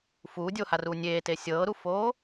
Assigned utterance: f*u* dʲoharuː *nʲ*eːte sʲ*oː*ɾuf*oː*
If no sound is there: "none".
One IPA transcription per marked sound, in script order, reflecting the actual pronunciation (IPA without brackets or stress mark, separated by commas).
uː, nʲ, ɤː, oː